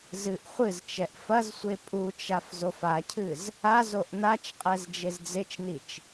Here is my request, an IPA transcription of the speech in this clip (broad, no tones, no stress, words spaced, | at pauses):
zɨʔ χʷɨzt͡ʃɛʔ fɐzsʷe pʼut͡ʃaf zofacʰɨz | azoʔ nat͡ʃqʼɛz d͡ʒezd͡zet͡ʃnit͡ʃ